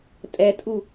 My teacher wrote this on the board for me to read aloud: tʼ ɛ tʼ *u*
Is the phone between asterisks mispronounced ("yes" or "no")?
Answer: no